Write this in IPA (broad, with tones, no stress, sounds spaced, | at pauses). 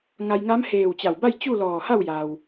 ŋ a˧ j ŋ a˧˥ m h eː˧˩ w t͡ɕ a˧˩ w b a˥˨ j t͡ɕ u˥˨ l ɔː˧˩ h a˥˨ w j a˩ w